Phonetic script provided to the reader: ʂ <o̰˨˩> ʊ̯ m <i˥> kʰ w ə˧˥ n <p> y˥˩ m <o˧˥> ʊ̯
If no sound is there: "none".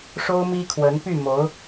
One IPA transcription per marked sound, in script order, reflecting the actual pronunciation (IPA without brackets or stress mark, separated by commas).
o˥, i˥, p, o˧˥